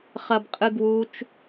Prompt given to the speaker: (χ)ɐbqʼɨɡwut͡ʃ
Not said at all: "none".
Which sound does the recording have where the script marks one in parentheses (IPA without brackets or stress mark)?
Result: χ